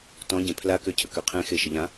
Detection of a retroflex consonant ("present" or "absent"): absent